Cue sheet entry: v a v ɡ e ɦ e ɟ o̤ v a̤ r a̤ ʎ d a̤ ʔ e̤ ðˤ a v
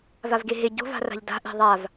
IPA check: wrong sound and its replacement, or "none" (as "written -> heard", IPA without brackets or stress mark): none